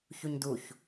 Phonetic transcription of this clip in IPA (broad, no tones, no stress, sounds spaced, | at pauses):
ç u ɲ d u ç